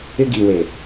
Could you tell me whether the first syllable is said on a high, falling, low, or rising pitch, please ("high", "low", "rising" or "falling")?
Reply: high